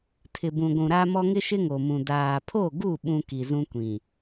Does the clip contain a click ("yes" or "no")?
no